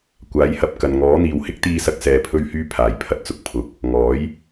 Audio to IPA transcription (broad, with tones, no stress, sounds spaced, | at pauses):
kʷ aː˨˥ j h ɐ˧ p̚ k ɐ˨ n ŋ ɔː˨˥ n̪ iː˨ w h ɪ˥ k̚ t̪ iː˧ s ɐ˧ k̚ s ɛː˧ pʰ ɵ˥ ɥ h yː˥ pʰ aː˨˩ j pʰ ɐ˧ t̚ t͡s ʊ˨ k̚ pʰ ʊ˨˥ k̚ | ŋ ɔː˨˥ j